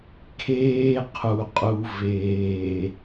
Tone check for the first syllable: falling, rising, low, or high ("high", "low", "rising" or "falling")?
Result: high